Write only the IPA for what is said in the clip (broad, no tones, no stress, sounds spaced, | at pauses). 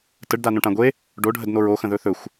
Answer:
t ə ɖ d a n õ ʈ ã ɡʷ e | ɖ o ɖʱ ə d n o ɹ o x ə̃ ð ɵ θ ɵ xʷ